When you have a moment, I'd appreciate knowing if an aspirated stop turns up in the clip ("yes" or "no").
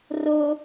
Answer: no